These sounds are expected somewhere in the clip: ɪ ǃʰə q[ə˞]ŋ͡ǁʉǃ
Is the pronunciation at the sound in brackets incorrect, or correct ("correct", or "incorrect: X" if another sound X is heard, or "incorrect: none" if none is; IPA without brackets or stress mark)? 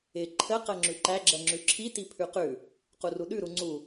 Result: incorrect: ɜ